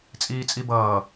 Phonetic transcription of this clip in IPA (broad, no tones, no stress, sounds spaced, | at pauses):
t͡sʼ iː t͡sʼ i b ʌː